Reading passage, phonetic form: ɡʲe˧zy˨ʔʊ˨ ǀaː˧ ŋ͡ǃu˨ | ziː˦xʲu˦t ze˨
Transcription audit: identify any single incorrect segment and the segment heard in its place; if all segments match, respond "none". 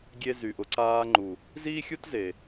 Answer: none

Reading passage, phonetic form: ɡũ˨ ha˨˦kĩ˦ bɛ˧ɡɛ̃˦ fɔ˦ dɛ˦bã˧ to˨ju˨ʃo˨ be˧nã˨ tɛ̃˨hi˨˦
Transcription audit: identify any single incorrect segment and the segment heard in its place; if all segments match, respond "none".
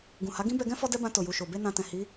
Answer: k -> ɡ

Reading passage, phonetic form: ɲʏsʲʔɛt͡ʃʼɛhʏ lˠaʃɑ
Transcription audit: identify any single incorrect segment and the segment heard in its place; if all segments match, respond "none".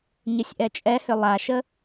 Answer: ɑ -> ə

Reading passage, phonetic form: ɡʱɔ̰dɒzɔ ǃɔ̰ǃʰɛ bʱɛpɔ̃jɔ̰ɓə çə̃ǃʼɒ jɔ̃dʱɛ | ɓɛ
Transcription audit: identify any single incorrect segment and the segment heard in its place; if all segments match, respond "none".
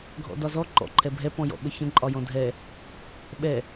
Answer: none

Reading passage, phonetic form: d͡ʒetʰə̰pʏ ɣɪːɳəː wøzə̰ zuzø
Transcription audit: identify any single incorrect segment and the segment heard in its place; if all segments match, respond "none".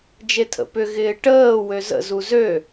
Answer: ɳ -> ʈ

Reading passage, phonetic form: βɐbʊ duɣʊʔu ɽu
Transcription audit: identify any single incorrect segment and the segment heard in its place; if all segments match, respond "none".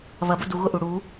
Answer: none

